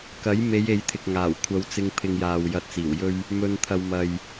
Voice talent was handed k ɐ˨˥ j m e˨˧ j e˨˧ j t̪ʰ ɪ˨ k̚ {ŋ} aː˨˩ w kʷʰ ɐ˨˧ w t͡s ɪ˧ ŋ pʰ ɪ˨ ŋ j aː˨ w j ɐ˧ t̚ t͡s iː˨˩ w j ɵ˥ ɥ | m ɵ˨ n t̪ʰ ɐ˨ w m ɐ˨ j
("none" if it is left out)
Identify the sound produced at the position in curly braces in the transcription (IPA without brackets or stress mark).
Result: ŋ